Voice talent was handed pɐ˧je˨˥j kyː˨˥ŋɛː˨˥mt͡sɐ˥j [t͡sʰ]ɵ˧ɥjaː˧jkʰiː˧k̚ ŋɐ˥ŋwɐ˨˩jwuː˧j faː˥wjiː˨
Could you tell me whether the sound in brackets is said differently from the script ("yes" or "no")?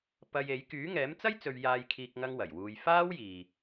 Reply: yes